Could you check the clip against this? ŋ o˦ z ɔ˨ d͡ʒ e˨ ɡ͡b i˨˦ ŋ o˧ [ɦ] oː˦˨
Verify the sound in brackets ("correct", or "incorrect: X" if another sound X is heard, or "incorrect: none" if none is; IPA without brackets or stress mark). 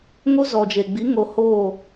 incorrect: h